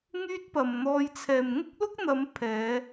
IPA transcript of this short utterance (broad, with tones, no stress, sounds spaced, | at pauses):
ŋ yː˥ t̚ p ɐ˨ m n̪ ɔː˧ j t͡sʰ ɛː˨ m ŋ ʊ˥ k̚ l ʊ˥ k̚ n̪ ɐ˨˧ m pʰ ɛː˨˧